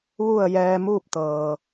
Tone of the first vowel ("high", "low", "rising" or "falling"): falling